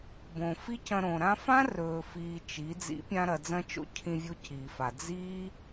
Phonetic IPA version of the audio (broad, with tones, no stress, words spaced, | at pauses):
bõ˨fi˦cɐ̃˧ɾõ˨ ɾã˧fã˦rɵː˨ fiː˧t͡ʃi˨˦ d͡zḭ˨˦pʲã˧ɾɐ˨ d͡zɐ̃˦t͡ʃo̰˦cʰĩ˧ vʲo˦ciː˨fa˨ d͡ziː˦